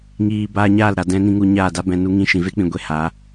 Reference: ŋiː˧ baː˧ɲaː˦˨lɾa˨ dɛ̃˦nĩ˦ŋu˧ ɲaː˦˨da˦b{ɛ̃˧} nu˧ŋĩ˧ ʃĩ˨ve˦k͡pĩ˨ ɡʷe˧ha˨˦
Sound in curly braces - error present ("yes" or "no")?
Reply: no